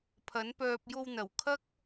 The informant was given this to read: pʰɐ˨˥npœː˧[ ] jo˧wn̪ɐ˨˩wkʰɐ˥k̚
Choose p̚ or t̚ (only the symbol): p̚